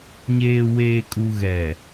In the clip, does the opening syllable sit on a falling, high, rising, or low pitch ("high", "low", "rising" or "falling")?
low